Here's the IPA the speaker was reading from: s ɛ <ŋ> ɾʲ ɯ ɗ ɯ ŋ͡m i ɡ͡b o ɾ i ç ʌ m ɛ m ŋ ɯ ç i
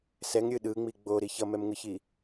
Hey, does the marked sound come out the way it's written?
yes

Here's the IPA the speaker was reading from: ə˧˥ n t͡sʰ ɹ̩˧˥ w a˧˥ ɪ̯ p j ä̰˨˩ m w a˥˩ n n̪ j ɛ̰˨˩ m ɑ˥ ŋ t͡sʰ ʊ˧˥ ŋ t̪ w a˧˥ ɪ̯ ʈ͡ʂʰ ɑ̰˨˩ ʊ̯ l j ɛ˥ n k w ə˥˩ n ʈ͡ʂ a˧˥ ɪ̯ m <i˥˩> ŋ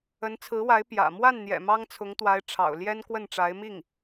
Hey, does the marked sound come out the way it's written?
yes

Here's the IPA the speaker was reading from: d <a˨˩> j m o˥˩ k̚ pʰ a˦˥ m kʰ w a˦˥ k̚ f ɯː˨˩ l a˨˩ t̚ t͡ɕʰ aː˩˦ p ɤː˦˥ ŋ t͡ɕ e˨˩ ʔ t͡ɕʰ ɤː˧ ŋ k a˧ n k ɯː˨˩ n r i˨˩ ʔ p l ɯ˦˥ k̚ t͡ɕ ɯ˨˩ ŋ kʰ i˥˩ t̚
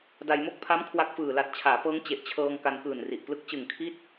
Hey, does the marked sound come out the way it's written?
no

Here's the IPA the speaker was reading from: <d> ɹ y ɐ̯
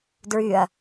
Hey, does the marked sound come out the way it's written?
yes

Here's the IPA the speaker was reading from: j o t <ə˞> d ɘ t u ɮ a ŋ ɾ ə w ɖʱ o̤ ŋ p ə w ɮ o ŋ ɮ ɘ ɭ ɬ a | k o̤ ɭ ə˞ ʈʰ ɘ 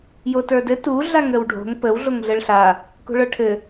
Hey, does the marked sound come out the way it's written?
yes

